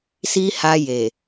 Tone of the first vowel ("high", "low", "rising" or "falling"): high